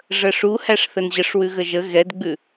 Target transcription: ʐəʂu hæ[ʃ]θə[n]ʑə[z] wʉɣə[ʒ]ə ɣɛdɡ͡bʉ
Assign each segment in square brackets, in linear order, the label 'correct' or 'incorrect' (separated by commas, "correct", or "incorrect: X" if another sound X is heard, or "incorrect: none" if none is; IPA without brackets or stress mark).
incorrect: ʂ, correct, incorrect: ʂ, correct